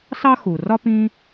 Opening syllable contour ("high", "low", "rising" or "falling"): high